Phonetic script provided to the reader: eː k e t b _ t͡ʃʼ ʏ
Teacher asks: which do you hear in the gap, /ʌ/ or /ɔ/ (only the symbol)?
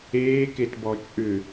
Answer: ɔ